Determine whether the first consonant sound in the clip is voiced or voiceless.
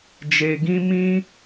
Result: voiced